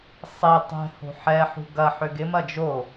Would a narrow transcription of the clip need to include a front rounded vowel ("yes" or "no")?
yes